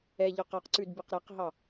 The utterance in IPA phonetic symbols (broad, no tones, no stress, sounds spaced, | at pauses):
ɛ ʎ ɔ q ɑ q ǀ ʉ d b e q ɾ æ q ɦ ɑ